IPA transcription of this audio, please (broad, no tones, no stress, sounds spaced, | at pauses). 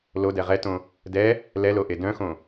l o d ɛ ʁ ɛ t õ | d ɛ | l ɛ l o ʔ e d œ̃ x õ